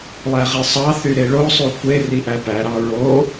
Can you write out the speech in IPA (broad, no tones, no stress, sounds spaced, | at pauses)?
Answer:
lˠ æ ʁ i sˤ ɑ θ y ɾ e ɭ o sˤ y kʷ e r i ʔ æ p æ ɾ ɑ ɹ o